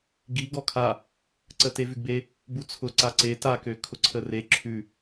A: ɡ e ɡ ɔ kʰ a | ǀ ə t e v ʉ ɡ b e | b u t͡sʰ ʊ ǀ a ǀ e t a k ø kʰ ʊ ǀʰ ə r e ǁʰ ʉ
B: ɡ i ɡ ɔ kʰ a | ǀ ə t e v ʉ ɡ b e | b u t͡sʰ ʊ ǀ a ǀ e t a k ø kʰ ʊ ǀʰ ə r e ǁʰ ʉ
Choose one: B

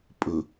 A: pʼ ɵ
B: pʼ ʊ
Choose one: A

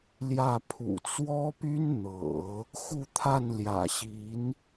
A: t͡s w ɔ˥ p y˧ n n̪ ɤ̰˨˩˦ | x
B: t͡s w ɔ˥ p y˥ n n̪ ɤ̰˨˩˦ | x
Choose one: B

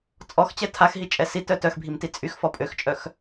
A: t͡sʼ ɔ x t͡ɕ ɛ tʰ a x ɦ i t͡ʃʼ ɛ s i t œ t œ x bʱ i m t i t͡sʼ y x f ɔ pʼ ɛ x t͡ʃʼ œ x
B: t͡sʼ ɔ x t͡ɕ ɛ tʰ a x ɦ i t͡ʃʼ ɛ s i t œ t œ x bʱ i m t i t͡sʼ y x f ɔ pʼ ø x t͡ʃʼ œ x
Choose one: B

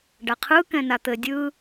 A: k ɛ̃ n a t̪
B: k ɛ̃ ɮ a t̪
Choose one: A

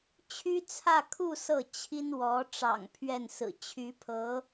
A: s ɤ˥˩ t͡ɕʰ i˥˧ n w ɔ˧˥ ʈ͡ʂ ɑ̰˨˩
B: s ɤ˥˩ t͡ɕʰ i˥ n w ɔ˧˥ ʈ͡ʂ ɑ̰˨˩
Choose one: B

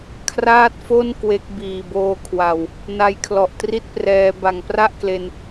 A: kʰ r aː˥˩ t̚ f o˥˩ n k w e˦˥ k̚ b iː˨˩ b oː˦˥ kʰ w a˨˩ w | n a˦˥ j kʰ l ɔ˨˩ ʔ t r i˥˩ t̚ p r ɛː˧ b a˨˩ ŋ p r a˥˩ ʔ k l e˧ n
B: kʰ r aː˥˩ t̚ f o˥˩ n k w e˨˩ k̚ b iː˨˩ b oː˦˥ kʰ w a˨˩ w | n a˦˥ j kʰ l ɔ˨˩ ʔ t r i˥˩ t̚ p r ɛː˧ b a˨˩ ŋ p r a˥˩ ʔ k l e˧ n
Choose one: A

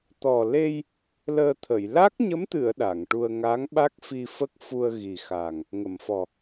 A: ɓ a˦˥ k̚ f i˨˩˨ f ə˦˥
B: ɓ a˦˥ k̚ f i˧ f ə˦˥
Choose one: B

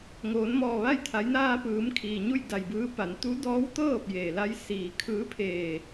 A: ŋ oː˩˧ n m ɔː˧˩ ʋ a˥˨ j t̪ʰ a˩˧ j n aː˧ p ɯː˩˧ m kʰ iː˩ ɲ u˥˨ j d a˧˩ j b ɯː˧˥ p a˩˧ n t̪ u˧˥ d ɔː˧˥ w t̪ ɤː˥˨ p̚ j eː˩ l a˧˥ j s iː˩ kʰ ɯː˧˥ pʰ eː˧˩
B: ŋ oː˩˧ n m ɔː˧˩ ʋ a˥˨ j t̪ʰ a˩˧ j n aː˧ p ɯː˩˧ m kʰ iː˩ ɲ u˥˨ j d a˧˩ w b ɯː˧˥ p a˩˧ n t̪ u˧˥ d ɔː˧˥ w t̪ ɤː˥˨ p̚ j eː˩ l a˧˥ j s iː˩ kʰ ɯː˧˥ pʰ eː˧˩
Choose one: A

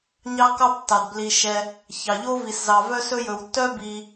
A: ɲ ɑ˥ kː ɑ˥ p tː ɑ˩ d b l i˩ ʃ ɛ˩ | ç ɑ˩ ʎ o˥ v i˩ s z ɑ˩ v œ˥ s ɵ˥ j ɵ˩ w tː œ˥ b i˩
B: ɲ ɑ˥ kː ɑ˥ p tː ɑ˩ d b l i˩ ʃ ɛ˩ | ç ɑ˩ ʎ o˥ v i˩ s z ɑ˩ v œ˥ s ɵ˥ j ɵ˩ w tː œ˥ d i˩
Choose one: A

